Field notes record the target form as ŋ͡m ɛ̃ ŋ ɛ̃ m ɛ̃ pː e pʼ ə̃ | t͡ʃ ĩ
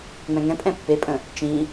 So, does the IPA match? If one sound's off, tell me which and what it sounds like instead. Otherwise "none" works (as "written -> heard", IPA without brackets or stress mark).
m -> pʼ